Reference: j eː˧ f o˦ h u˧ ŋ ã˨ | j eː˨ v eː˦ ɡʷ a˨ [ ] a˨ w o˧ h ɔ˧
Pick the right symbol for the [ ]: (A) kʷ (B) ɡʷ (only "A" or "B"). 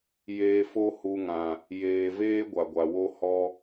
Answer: B